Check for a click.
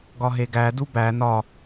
absent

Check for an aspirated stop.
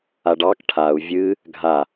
present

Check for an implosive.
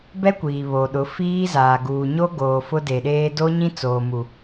present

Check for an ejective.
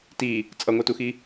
present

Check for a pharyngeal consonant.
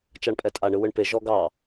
absent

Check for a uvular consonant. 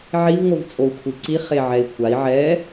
present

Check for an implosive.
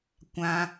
absent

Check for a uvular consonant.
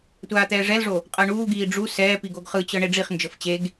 present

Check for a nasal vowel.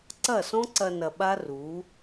present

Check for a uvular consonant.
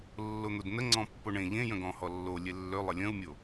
absent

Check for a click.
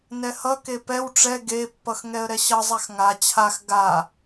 absent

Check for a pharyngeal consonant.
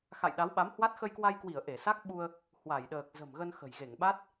absent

